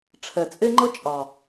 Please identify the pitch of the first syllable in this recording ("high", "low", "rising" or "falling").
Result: low